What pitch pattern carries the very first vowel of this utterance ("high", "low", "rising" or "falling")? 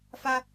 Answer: high